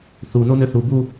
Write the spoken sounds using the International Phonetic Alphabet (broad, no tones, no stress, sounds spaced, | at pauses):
θ u n o n ø θ u b u